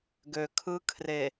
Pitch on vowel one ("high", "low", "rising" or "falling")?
low